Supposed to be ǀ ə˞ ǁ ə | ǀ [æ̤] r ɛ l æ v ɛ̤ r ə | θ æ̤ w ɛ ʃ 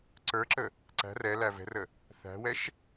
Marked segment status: correct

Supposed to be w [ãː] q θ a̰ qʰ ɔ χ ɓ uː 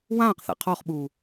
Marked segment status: correct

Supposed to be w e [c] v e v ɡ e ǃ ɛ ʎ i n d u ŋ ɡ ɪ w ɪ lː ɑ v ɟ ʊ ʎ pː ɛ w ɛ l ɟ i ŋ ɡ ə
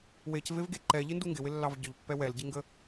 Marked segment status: correct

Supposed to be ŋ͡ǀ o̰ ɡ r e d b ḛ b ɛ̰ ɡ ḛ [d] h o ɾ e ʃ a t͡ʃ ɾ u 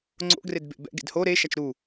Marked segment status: correct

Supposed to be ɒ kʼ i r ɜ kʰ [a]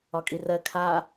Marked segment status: correct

